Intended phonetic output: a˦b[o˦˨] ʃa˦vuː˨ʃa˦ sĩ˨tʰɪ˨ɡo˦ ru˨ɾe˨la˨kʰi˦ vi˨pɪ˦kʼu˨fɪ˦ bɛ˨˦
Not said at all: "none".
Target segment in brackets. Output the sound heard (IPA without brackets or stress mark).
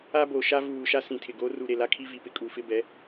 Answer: o˨